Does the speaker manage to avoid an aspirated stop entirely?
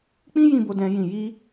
yes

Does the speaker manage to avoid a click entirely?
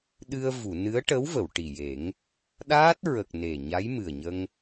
yes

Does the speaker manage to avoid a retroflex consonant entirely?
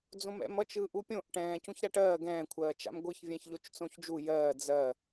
no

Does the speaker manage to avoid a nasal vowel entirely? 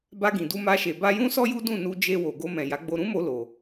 no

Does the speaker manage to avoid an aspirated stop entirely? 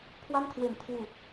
no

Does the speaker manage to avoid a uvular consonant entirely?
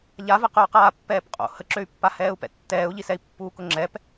no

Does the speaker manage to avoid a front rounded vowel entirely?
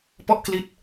yes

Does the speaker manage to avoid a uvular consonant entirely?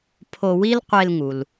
no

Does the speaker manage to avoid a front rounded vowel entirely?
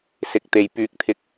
no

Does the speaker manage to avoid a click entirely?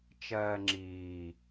no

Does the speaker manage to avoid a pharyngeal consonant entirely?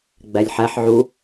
no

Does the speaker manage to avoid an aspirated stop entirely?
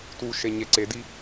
yes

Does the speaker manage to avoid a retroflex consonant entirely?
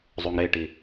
no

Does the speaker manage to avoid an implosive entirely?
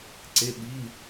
no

